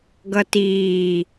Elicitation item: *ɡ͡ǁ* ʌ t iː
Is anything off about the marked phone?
yes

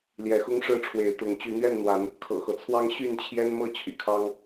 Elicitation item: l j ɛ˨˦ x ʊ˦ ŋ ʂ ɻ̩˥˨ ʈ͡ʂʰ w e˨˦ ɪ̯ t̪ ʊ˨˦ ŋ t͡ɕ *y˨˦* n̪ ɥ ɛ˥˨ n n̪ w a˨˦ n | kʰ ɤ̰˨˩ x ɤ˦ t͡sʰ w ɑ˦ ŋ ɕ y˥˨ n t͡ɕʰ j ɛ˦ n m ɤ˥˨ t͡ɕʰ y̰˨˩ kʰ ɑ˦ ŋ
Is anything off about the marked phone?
no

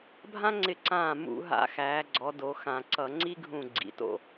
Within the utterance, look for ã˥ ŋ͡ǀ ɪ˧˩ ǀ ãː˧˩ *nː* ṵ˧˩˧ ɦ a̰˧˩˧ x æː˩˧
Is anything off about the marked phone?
yes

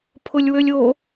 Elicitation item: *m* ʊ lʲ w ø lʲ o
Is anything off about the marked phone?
yes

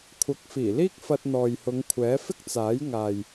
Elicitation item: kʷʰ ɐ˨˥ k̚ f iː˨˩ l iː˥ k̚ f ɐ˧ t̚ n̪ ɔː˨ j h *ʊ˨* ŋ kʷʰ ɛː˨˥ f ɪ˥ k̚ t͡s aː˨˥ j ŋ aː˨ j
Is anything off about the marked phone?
yes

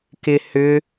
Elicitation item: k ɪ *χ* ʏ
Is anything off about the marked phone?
yes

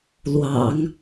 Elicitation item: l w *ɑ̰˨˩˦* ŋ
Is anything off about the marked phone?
no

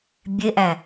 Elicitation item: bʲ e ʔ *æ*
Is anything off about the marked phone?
no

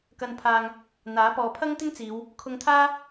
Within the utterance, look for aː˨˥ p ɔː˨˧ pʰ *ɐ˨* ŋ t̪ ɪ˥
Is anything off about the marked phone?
yes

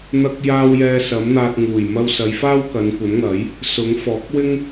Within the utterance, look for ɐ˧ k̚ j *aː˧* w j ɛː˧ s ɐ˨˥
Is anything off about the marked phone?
no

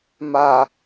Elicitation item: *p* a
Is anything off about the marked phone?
yes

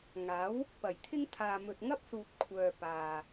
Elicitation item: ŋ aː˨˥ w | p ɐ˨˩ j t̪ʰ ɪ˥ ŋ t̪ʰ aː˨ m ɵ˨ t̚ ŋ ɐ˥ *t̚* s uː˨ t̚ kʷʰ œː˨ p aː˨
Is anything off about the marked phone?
yes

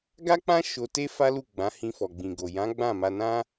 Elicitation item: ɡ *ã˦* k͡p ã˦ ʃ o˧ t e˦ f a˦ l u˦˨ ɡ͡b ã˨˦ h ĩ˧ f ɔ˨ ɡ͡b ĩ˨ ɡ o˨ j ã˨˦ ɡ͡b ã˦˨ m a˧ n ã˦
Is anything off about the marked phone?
yes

